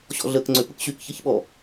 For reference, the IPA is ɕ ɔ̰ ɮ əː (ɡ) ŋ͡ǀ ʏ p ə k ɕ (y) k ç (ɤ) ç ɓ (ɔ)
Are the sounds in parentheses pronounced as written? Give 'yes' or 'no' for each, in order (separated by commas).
no, yes, yes, yes